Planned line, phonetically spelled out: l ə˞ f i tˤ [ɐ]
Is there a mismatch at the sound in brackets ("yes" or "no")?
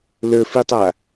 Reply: yes